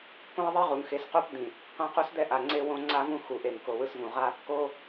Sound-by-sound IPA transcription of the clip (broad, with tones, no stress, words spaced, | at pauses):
kõ˦e̯ðˤe˦ʁu˨ŋxe˨˦s qo˦p d̪ĩ˨ | qã˦qo˦sd̪ɛ˦ ʔa˨ŋ͡ǀe˦wõ˦ ŋ͡ǀa˦vũ˦ xu˨ʔe˨ŋ ko˨wɯ˦svũ˨ ʁa˦ | ko˦